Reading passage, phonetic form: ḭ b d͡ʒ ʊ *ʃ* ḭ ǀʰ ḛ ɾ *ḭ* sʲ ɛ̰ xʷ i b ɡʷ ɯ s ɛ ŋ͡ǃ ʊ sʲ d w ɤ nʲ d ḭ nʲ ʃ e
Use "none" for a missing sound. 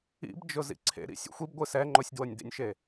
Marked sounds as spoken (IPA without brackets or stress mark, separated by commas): z, ḭ